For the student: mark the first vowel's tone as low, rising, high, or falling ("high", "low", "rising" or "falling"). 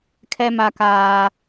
high